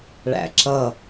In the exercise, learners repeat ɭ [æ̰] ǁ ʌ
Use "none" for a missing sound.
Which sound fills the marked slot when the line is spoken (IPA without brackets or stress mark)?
æ̰